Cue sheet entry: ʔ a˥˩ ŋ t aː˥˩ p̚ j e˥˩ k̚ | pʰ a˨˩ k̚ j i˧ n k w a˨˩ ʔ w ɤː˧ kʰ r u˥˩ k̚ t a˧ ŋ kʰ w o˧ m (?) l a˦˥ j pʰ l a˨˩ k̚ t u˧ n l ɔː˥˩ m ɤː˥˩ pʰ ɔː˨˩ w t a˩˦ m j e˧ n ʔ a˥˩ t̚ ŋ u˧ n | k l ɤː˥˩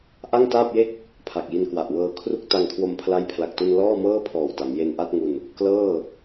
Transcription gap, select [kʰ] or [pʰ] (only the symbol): pʰ